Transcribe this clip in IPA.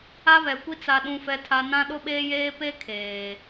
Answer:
a˦ β ɛ˨ kʷ i˦ t͡s a˨ ɗ ũ˨ f ɛ˨ tʰ a˨ n ã˦ ɗ ʊ˦ ɓ eː˦ j eː˦ p e˦ kʰ eː˨

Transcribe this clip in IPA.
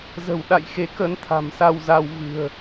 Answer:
z ə̤˨˩ w ɗ a̰˧˨ j x e˨˦ k ə˨˦ n t̪ʰ a̤˨˩ m s a˧ w z a˧ w v ɨ̤˨˩ ə̯

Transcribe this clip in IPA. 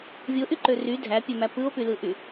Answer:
vʲ o ʔ y ǃ ø r y dʱ æ pʲ ø m æ p ɯ o̯ p y l ɯ ʔ y

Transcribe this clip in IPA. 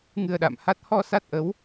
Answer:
ŋ ɨ˧ ə̯ ɗ a̰˧˨ m h a˦˥ t̚ h ɔ˧ s a˦˥ t̚ ʔ ə˨˦ w

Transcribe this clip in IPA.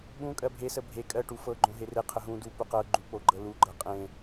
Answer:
ɓ ũ kʼ ɜ bʱ e s ə bʱ e kʼ ɜ ʈ u f ɤ ɡ͡ǃ õ ɦ e r e qʰ ə ɦ ũ d u p u q ɤ ɡ͡ǃ u k͡p o ɡ͡ǃ ɤ l u ɡ͡ǃ ɤ qʼ ẽ

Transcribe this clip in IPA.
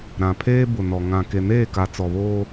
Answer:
ɾ ã˨ pʰ eː˦ b ʊ˨ n ɔ˨ ŋ ã˨ k e˨ n eː˦˨ k a˨ t͡s ɔ˨ β oː˦

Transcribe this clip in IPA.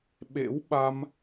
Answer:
ɓ ḛ˧˥ w ɓ a˧ m

